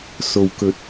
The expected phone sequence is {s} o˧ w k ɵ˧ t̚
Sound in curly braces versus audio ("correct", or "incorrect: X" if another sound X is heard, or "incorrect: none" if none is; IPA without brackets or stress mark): correct